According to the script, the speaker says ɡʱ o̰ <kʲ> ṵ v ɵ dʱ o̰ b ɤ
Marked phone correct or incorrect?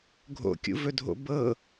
correct